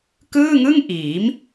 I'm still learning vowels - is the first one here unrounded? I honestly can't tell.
yes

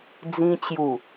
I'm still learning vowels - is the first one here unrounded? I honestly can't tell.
yes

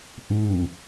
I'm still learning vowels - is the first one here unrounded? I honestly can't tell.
no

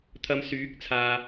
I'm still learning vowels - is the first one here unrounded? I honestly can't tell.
yes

